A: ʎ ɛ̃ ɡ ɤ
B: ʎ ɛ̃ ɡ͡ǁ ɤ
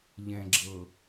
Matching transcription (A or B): B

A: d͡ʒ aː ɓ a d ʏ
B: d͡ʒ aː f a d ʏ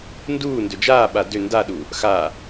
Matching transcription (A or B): A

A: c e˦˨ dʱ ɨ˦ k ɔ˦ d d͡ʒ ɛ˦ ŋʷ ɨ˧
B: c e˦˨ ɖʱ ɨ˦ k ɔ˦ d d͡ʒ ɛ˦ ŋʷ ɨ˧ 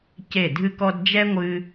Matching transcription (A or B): A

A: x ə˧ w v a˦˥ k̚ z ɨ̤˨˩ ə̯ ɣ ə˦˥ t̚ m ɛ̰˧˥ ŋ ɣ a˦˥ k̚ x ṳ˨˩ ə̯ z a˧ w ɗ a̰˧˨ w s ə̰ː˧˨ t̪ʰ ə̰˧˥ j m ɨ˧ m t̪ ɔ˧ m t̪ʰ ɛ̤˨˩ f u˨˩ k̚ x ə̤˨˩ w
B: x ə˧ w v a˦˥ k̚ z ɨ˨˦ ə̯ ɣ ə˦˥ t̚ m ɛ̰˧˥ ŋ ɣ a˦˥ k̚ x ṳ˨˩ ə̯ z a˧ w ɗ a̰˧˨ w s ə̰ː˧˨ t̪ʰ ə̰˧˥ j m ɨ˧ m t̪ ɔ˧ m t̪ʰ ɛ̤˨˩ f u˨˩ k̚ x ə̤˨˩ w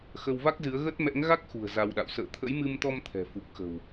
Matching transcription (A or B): B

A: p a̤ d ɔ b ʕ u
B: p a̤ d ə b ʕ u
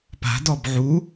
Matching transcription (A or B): A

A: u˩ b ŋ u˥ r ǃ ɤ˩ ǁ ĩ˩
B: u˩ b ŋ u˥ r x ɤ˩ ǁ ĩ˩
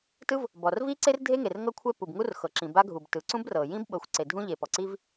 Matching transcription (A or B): B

